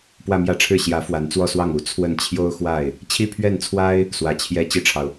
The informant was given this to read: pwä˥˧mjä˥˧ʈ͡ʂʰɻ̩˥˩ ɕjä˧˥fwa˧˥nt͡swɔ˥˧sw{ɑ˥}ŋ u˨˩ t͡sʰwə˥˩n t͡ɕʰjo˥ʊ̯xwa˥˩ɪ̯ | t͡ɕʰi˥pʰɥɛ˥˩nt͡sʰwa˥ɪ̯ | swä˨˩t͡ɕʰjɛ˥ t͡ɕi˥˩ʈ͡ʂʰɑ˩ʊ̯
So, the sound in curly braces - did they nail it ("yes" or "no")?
no